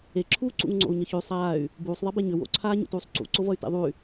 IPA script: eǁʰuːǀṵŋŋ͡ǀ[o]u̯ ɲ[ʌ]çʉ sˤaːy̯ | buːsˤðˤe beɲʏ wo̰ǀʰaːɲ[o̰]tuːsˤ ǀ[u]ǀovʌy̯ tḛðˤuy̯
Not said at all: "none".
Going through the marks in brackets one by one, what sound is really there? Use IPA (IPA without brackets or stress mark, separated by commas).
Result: o̰, ʌ, ṵ, ṵ